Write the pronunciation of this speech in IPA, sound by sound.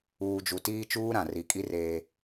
uː˨ d͡ʒ u˨ t iː˦ t͡ʃ uː˦ ɾ ã˨ r i˨ kʼ i˦ r eː˦

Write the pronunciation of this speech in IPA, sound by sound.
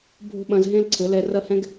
bʱ o̤˦ ɓ ɐ̃˧ z ɦ ẽ˦ l ǀʰ ɘ˨˦ l ɛ˧ r ɐ˦ h ɛ̃˦ ɡ

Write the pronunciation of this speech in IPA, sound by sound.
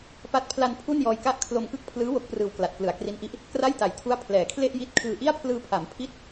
p a˦˥ t̚ pʰ l a˧ n pʰ u˥˩ n j ɔː˧ j k a˦˥ ʔ kʰ l o˧ m k ɯ˥˩ k̚ pʰ l ɯː˦˥ w o˦˥ k̚ p r ɯː˧ w k l a˨˩ t̚ k l ɯ˨˩ a̯ k r i˦˥ n ʔ i˦˥ ʔ | k r a˥˩ j t a˨˩ j tʰ u˦˥ a̯ pʰ l ɛː˩˦ kʰ l e˥˩ ʔ j i˦˥ t̚ kʰ ɯː˧ ʔ i˥˩ a̯ pʰ l ɯː˧ pʰ a˩˦ m pʰ i˥˩ t̚

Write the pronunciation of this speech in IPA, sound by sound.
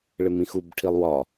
ɭ ɪ m ĩ x u b ʈʰ i lˠ w ɒ

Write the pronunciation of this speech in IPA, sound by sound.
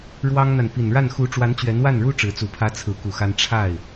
ɻ w ɑ˥ ŋ n̪ a˨ n p i˨˩ n ɻ a˥˩ n x u˧˥ ʈ͡ʂ w a˧˥ n t͡ɕ ɥ ɛ˧˥ n w a˥˩ n ɻ u˥ ʈ͡ʂ ɻ̩˧˥ t͡s u˧˥ pʰ ä˥ t͡sʰ ɹ̩˧˥ k u˨˩ x a˥ n ʈ͡ʂʰ a˥˩ ɪ̯

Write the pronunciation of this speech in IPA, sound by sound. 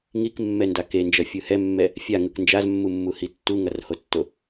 ŋ i k mː ɛ n d a k e n d͡ʒ ʌ fʲ ɯ h ɛ mː ɛ | fʲ a ŋ ɯ k n d͡ʒ a z mː u mː u h i tː u ŋ ʌ r h o tː o

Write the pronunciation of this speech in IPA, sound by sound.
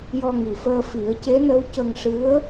j ɔ˧ ŋ i˨˩ f əː˧ f i˨˩˦ ə̯ c e˧˥ n ə˧˥ w c ə˧ ŋ ʂ ɨ˧˥ ə̯

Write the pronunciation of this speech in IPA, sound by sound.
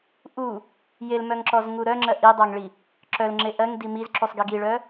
ʔ u | j e l m œ ŋ ǁ ɔ z ŋ u ɾ œ ŋ͡ǁ ɜ ʔ i dˤ ɜ ŋ ɭ i | ǁ œ l ŋ͡ǁ e ʔ ɜ ŋ d i m i z ǁ u sˤ ɡ i ɡ i ɭ œ

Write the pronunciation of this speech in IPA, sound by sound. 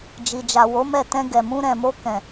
d͡ʒ i˨ d͡ʒ a˨ w o˨˦ m ɛ˦˨ t ɛ̃˧ ɡ ɛ˨ m ũ˧ ɾ ɛ̃˨ m o˧ k ɛ̃˨

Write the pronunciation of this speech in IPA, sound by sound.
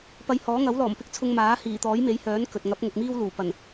p ɐ˧ j h ɔː˨˥ ŋ ɐ˨˥ w l ɔː˨˩ m p ɪ˧ k̚ t͡sʰ ʊ˧ ŋ m aː˨˥ h iː˨˩ t̪ ɔː˨˥ j m e˨˥ j h œː˨˥ n k ɵ˨ t̚ ŋ ɐ˨˥ p̚ ŋ ʊ˨ k̚ m iː˥ w l uː˨˩ p ɐ˨˩ n

